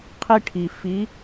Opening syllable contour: high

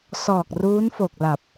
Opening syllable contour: low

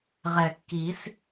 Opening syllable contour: low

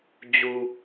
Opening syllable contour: low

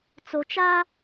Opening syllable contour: low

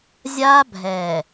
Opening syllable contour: high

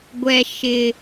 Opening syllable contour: low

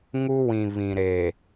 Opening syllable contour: high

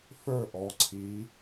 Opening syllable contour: falling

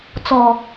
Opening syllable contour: low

